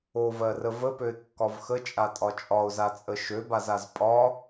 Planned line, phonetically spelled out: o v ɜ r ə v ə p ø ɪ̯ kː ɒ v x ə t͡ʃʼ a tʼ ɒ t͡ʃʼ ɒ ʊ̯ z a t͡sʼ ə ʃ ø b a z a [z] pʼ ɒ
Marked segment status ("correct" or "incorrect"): correct